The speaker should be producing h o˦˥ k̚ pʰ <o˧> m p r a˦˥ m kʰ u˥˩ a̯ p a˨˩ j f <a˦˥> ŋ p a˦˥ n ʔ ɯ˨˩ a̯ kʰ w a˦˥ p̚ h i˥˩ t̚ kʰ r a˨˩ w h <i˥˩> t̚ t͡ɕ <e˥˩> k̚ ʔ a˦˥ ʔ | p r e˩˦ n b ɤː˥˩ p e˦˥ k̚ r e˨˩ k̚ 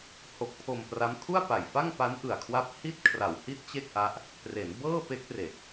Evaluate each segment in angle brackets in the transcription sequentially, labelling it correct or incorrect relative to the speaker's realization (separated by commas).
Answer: correct, incorrect, correct, correct